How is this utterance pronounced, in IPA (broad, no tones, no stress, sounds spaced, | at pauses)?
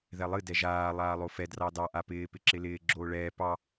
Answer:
ð ɛ lˠ ɨ d ɛ ʒ aː lˠ aː lˠ o f ɛ d r ɑ d ɑ ʔ a p ɪː p ɪ ǁ ɪ l ɪː ɡ͡ǁ oː ɭ ɛː p ɑ